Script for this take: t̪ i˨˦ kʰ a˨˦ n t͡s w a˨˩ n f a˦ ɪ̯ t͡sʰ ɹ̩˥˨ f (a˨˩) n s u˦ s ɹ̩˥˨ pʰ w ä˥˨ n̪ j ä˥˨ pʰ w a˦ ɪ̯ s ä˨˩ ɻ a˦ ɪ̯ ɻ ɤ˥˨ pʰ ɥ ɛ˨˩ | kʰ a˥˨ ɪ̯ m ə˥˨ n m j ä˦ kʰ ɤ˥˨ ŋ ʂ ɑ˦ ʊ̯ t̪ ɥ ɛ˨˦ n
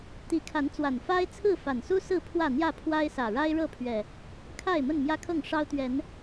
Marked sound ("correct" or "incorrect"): correct